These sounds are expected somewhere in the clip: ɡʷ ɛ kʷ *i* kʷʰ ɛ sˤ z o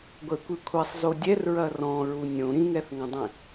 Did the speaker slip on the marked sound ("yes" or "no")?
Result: no